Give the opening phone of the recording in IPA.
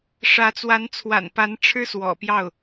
ʂ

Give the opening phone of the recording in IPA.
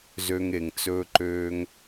z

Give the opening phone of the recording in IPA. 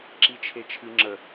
ǁ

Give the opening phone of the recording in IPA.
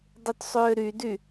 dˤ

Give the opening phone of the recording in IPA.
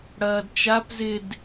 ɽ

